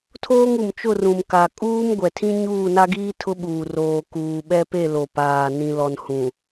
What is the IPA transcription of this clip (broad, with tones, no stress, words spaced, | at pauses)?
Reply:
tʰoː˦ŋu˨m t͡ʃʊ˦˨rũ˨m ka˨ kʼuː˦mɡʷɛ˨tʰĩ˦ ɲuː˦˨na˦ɡiː˦ tʰʊ˦ɓuː˨ roː˨ kuː˨ɓɛ˦pe˦˨ lo˨paː˨ nĩ˨lɔ˨nhũ˨